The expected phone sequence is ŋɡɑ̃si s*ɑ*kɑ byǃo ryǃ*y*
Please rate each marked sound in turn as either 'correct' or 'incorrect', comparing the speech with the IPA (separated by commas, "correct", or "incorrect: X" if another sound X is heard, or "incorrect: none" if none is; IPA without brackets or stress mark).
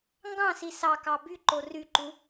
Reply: correct, incorrect: u